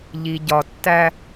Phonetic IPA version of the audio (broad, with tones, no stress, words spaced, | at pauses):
ʎi˨ɟɒ˨ tːæ˦